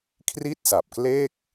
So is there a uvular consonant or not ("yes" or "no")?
no